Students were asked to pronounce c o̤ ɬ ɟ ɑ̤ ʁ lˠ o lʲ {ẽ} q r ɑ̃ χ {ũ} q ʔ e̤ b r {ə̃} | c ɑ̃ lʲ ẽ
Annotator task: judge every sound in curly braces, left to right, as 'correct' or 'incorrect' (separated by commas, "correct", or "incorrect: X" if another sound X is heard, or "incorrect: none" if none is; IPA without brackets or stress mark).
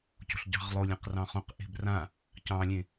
correct, incorrect: õ, incorrect: ã